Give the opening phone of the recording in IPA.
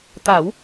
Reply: t̪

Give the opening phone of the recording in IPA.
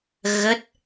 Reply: ɣ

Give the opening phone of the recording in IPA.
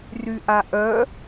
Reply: r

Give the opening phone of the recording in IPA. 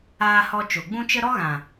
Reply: aː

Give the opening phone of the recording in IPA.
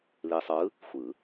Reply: l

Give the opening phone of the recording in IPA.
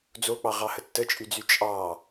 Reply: d͡z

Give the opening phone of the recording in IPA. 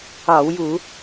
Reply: ɑ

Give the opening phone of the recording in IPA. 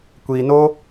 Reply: kʷ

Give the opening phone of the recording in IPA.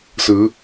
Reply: s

